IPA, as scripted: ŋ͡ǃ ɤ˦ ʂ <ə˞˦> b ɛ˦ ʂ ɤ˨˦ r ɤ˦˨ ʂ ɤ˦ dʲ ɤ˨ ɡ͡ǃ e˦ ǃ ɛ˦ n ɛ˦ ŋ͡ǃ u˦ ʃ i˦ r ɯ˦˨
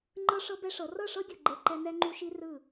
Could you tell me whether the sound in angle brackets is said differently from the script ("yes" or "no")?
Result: yes